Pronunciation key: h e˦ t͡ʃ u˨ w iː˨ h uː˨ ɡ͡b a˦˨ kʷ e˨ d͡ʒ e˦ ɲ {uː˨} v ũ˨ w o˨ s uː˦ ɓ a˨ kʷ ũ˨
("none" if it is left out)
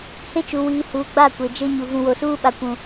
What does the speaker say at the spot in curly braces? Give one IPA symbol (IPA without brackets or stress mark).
u˨